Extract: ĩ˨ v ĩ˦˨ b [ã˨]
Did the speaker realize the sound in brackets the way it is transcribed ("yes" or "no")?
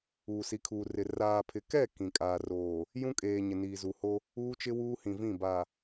no